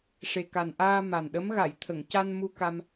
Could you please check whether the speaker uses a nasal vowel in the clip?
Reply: no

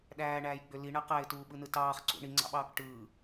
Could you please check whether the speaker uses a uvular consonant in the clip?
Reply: yes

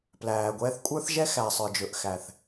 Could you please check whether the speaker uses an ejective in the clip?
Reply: yes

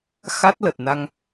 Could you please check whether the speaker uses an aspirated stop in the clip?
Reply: no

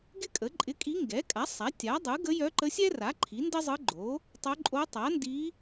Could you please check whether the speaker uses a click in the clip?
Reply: yes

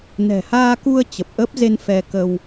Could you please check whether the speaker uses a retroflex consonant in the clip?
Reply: no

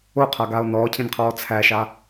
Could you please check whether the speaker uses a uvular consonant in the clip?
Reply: yes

